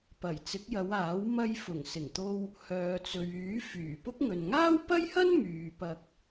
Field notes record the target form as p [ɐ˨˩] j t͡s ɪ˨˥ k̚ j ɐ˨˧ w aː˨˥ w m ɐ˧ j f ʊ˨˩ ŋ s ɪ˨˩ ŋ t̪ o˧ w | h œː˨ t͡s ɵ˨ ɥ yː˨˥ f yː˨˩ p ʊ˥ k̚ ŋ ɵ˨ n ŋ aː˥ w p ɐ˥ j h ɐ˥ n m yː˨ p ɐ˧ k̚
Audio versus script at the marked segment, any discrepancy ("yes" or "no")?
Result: no